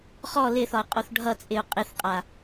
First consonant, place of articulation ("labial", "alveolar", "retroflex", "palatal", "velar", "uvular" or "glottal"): uvular